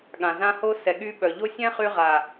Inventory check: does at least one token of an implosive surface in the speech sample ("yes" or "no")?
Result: yes